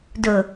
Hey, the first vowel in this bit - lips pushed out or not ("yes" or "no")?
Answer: yes